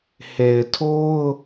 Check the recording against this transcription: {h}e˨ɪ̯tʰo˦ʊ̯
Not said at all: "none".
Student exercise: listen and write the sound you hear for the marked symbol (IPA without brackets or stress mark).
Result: h